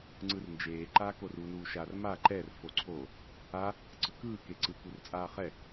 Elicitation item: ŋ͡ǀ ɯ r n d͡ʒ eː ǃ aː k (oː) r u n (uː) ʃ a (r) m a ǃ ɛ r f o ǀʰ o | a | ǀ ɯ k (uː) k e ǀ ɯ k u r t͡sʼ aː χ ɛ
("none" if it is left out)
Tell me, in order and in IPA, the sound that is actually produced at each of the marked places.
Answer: o, uː, r, ɯː

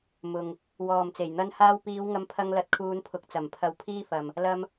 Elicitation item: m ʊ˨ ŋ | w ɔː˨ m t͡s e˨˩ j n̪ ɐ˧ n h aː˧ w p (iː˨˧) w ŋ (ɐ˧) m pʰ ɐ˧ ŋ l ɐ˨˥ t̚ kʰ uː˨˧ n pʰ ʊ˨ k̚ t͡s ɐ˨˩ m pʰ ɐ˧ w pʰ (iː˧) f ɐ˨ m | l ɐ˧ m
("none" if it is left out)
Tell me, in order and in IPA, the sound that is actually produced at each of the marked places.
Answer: iː˨˧, ɐ˧, iː˥

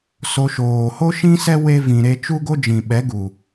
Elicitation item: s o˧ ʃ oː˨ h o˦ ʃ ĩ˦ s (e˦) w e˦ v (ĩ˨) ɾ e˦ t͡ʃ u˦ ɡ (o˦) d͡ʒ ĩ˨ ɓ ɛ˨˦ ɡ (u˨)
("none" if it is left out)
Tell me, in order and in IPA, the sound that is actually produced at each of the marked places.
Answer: ɛ˦, ĩ˨, o˦, u˨

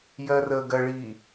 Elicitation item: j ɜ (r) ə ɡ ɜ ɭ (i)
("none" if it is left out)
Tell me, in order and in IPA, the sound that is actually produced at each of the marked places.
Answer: r, i

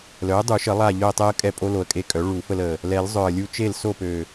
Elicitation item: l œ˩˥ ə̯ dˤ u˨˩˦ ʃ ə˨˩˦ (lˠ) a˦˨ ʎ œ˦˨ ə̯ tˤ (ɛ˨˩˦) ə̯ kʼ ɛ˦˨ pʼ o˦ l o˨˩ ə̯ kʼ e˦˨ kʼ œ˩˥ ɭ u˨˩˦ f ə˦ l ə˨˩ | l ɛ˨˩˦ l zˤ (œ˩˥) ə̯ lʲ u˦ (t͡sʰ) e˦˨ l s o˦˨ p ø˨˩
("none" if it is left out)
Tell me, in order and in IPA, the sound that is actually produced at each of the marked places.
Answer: lˠ, ɛ˦, œ˨˩, t͡ʃ

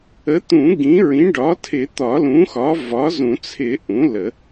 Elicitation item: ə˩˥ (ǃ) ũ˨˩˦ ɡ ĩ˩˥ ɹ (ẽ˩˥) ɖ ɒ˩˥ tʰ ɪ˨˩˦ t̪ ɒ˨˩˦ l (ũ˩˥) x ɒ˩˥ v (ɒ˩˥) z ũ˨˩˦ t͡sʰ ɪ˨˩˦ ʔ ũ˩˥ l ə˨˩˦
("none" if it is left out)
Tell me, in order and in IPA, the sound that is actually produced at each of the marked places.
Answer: t̪, ĩ˩˥, ũ˩˥, ɒ˩˥

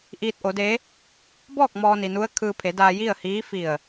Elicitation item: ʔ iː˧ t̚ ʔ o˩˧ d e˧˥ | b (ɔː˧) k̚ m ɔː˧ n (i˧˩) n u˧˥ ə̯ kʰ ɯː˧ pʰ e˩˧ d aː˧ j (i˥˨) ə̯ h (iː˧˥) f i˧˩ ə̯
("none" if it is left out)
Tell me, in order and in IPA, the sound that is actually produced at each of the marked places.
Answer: ɔː˥˨, i˩, i˥˨, iː˧˥

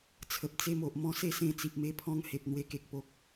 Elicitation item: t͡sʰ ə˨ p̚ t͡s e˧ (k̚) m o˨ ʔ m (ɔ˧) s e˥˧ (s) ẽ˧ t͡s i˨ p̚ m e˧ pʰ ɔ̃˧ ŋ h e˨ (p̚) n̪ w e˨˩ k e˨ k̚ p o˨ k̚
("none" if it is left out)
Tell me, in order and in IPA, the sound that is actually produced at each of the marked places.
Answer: none, ɔ̃˧, s, p̚

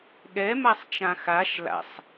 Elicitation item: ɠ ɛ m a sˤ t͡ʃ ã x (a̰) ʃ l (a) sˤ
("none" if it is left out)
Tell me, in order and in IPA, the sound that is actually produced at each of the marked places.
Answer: a, a̰

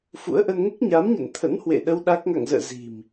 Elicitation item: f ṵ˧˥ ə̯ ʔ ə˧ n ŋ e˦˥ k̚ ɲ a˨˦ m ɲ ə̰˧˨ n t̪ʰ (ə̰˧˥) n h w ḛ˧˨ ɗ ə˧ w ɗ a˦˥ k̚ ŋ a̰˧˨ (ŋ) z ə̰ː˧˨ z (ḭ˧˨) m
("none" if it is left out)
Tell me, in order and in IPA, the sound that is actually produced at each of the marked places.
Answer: ə̰˧˥, ŋ, i̤˨˩

